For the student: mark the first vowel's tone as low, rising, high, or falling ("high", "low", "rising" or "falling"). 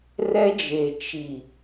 high